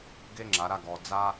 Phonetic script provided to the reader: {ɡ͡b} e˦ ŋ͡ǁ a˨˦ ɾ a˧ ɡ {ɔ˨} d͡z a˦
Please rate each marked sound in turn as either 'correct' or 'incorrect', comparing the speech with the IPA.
incorrect: ɡ, incorrect: ɔ˧

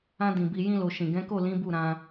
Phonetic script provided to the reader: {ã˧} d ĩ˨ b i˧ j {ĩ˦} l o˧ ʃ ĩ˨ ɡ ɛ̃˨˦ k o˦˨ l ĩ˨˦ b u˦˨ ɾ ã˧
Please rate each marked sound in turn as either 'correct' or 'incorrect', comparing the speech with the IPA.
correct, correct

